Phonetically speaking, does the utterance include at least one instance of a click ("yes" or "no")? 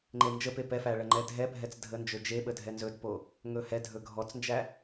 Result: yes